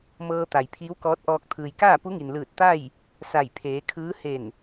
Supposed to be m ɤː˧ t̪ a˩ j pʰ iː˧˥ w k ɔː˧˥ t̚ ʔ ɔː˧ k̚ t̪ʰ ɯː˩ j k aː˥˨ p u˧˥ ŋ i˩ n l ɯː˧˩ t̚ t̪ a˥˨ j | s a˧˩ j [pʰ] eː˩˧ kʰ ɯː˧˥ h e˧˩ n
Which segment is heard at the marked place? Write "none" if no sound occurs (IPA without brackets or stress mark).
pʰ